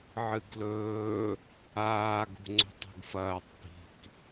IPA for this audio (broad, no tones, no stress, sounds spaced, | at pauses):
ʕ ɨ ɡ l ɵː | aː ɡ ṳ ŋ͡ǀ o̤ tˤ ṳ ɡ f ɐː tˤ p i̤ k